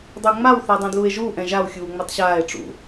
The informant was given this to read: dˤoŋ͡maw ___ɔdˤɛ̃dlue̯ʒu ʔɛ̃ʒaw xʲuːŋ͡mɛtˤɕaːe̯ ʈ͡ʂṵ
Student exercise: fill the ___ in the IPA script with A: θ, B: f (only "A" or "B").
A